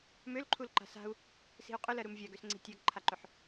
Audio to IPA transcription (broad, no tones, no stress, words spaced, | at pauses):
mølǃʰul ǃa̤sa̤u̯ | si̤u̯qʼʏlɜ ɾumvʲaɡøsŋ͡ǀi̤ tʲaɡǃʰaǃʏħ